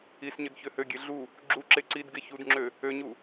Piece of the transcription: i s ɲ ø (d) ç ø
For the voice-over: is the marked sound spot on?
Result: yes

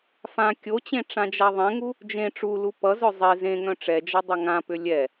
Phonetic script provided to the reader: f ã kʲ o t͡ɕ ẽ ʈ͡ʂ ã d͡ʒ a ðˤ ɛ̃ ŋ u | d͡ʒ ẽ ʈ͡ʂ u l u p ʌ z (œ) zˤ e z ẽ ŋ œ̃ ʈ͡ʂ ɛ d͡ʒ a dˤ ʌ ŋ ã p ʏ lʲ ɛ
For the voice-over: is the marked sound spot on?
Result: yes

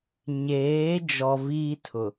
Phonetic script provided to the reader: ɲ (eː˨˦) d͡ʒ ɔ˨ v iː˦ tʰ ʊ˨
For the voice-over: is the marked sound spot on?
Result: yes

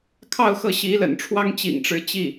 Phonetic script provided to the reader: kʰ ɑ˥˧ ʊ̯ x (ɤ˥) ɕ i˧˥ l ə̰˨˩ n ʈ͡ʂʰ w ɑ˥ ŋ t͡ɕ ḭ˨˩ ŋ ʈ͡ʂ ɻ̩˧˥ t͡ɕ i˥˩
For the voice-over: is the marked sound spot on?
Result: no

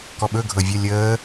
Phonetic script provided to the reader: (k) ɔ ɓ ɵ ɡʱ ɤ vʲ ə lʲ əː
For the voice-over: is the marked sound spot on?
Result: yes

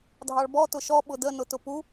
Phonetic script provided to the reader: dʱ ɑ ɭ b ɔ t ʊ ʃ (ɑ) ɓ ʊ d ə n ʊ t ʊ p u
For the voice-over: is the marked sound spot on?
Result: no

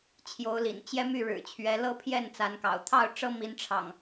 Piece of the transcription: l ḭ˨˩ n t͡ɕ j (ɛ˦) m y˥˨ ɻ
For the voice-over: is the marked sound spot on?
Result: yes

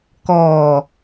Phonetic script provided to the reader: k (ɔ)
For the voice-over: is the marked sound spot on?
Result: no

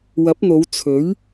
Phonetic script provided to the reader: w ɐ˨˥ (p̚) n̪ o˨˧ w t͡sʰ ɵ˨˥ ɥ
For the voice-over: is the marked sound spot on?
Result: yes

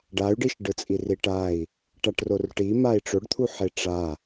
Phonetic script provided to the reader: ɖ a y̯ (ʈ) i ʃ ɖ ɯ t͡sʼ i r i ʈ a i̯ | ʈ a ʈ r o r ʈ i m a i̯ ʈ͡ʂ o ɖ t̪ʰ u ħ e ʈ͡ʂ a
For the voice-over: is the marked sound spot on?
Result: no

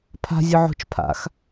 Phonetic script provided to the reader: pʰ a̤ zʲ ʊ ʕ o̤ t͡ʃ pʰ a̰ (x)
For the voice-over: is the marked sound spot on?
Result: yes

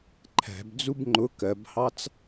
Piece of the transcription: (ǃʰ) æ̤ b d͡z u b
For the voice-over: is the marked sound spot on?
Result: yes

